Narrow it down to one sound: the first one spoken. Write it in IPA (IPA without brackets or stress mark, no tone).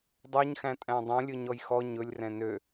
dˤ